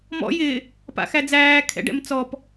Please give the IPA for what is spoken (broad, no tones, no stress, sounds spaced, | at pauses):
m ɔ̰ j ɪ | p a̰ x æ d͡z æː kʰ ɛ̰ ɖ ɛ̰ m t͡s ɔ p